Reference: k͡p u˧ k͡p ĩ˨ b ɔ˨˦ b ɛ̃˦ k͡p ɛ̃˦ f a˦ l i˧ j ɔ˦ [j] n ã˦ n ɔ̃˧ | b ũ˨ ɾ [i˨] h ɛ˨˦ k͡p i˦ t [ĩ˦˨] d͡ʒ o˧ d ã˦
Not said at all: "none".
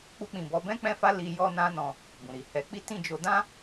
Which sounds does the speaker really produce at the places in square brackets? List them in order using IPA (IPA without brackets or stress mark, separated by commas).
none, i˨, ĩ˦˨